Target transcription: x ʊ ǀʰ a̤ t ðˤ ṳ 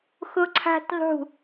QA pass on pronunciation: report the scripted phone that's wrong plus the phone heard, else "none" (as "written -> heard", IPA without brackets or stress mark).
none